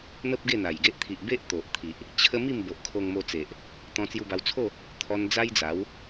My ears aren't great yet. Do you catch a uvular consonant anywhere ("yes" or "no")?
no